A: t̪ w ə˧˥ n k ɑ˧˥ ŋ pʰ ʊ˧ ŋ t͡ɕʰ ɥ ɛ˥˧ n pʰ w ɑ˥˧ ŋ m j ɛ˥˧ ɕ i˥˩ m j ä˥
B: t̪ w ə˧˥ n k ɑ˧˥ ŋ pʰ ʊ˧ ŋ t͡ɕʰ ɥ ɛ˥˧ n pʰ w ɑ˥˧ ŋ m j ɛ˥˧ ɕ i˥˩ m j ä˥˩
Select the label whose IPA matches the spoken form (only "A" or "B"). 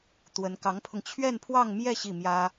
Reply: A